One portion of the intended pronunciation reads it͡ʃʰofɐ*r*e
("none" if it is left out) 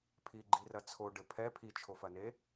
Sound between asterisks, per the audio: n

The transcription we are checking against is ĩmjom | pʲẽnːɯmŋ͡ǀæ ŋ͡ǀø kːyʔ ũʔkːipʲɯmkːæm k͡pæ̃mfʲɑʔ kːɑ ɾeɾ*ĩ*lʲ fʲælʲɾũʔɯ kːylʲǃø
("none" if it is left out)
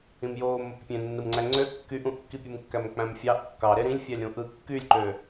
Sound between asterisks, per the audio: ĩ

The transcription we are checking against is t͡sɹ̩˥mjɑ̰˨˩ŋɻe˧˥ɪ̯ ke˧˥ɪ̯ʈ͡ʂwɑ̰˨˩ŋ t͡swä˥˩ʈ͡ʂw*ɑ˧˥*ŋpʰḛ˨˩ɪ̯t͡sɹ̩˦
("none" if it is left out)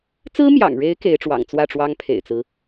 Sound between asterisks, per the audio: ɑ˥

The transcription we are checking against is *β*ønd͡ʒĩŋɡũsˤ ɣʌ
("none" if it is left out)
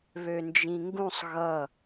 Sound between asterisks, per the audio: β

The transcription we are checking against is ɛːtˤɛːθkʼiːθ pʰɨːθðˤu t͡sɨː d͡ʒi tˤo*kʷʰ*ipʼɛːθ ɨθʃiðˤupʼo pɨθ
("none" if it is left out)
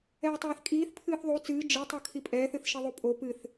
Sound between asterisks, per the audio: kʰ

